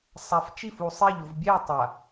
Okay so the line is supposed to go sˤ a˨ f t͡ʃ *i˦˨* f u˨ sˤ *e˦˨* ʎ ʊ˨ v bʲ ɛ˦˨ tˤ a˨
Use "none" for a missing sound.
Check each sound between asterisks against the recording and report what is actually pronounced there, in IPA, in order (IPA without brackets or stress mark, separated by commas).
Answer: i˦˨, e˦˨